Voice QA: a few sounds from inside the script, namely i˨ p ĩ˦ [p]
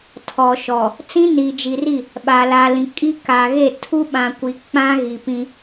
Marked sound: incorrect: none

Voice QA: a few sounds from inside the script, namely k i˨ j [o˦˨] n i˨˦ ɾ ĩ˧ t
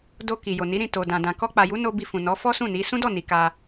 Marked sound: incorrect: o˨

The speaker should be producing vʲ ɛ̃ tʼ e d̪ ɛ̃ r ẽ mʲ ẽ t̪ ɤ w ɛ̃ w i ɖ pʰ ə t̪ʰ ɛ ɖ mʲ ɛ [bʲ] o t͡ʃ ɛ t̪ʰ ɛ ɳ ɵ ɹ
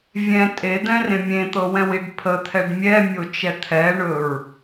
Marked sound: incorrect: mʲ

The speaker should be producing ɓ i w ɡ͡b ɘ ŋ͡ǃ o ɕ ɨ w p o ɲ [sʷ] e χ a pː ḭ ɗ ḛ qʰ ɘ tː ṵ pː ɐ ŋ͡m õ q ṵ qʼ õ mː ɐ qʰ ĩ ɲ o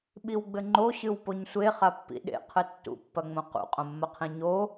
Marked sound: correct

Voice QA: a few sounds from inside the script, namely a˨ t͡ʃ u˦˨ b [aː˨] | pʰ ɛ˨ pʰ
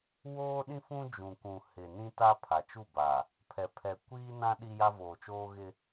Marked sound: correct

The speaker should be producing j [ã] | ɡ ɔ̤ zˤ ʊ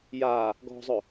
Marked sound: incorrect: a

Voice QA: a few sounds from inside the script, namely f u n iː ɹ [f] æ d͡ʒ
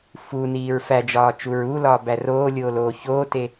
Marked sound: correct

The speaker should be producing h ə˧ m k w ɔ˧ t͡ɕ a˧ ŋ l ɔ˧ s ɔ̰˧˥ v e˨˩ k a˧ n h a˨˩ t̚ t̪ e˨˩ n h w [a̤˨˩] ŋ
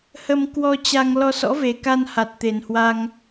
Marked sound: incorrect: a˧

